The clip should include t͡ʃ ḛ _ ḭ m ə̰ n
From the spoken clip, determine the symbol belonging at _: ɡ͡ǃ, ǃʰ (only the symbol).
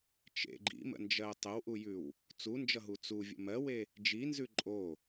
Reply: ɡ͡ǃ